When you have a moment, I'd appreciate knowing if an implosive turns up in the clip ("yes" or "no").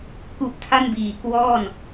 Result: no